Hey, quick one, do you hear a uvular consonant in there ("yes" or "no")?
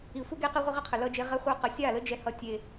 yes